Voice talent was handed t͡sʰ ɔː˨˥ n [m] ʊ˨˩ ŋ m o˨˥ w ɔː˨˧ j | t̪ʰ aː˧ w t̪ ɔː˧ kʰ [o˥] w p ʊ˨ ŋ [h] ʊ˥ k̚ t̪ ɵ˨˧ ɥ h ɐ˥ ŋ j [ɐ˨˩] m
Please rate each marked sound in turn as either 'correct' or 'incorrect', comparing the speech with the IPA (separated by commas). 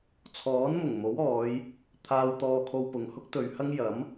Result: correct, incorrect, correct, incorrect